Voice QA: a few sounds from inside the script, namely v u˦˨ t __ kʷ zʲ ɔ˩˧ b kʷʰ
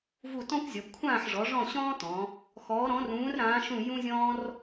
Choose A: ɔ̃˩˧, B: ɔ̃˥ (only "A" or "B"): B